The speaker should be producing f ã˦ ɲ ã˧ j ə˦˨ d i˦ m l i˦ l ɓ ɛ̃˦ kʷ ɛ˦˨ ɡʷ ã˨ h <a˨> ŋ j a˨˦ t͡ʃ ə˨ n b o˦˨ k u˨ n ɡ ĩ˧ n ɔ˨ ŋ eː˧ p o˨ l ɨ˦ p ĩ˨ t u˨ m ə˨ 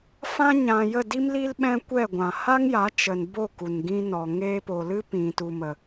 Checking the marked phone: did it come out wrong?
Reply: yes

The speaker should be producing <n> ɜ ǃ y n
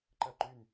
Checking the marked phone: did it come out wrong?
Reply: yes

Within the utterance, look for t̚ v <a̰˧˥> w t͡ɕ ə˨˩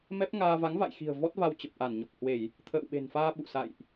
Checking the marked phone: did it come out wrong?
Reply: yes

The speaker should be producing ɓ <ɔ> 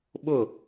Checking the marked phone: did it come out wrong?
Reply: yes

